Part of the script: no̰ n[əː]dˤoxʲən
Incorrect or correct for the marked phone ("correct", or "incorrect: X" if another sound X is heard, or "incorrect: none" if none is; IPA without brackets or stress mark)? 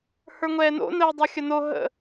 correct